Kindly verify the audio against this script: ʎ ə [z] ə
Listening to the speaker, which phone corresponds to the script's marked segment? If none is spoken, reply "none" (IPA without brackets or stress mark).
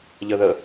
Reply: ð